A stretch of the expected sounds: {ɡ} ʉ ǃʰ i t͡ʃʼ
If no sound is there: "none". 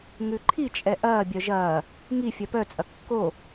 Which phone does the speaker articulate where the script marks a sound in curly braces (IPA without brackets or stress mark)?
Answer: ŋ